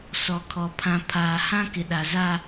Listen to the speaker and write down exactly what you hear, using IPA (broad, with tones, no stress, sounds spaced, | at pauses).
s ɔ˨ kʰ ɔ˨ pʰ ã˨ pʰ aː˨ h ã˦ k ɪ˨ ɗ a˨ z a˦